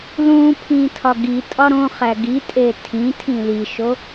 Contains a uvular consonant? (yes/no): yes